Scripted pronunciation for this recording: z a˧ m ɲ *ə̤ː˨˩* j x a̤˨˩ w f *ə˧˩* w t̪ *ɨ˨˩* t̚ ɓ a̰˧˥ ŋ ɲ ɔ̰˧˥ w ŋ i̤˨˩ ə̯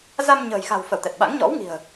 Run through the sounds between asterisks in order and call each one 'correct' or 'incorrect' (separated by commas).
correct, correct, incorrect